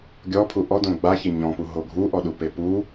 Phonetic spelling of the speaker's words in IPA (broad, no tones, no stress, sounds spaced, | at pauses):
ɡʲ ɔ pʰ u ʔ ɔ d õ ɡ͡b a ç ɪ ɲ ɔ̃ p u ɦ o ɡʱ u ʔ ɔ ɗ u p e p u